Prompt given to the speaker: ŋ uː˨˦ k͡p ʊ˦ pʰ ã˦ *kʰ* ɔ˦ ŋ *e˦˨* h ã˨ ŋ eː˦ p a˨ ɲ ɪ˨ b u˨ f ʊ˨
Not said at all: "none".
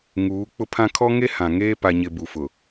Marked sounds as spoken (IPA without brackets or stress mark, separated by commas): kʰ, e˦